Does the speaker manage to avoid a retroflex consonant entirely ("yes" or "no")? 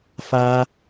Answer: yes